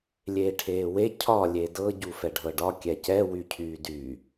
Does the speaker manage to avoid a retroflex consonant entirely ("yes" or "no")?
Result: no